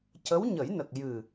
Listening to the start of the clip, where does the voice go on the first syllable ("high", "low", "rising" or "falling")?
rising